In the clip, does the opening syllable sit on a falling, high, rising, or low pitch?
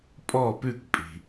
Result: falling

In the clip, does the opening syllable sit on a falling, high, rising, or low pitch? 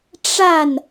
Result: falling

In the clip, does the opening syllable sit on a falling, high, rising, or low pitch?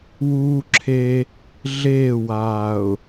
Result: high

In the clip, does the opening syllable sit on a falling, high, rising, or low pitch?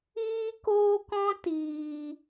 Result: high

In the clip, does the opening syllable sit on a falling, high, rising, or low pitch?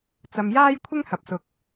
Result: low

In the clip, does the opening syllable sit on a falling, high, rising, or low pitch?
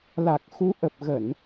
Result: low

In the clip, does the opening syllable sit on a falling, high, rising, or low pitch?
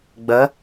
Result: rising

